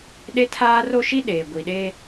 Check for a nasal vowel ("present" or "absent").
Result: absent